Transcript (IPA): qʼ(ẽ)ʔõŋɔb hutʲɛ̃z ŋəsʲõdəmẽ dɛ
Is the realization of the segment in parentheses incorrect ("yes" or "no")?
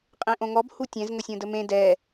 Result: no